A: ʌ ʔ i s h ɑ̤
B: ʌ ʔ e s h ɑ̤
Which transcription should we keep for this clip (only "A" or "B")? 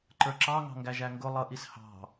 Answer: A